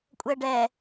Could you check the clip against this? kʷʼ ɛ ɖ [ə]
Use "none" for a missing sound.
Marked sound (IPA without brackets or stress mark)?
ɛ